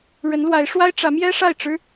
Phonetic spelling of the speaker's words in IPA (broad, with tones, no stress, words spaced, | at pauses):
ɻə˧˥nlwa˧˥ɪ̯ʂwa˥ɪ̯ ʈ͡ʂä˧˥mjɛ˥ʂa˥˩ɪ̯ʈ͡ʂɻ̩˥